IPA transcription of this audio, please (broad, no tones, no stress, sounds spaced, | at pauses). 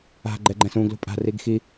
a̤ ɡ͡ǃ ɛ ɡ͡ǃ ɛ̃ s ũ ɡ l ṳ pʼ a̤ r i ɡ x i